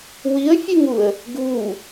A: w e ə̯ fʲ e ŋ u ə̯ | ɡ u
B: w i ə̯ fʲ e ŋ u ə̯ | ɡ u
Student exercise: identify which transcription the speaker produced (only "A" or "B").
B